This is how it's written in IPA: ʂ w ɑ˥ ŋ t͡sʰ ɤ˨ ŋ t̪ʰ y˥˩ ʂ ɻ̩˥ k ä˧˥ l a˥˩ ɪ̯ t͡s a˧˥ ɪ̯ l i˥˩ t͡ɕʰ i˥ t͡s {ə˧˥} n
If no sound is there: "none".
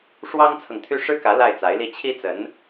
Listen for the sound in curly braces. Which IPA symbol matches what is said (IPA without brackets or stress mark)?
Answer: ə˧˥